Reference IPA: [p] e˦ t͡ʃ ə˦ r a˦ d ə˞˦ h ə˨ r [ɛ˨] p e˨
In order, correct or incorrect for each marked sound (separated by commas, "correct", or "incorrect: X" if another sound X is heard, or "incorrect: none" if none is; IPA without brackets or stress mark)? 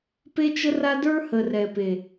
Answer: correct, correct